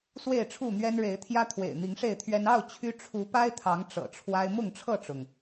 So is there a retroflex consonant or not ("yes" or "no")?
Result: yes